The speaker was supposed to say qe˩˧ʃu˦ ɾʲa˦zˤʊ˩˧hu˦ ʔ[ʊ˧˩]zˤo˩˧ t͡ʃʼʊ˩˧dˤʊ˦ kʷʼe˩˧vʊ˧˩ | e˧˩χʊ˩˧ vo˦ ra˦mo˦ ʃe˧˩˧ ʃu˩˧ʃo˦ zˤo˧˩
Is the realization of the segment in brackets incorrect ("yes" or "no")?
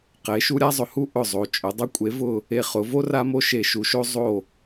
no